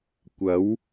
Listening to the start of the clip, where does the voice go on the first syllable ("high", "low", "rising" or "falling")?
rising